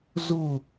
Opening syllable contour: falling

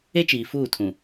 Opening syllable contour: high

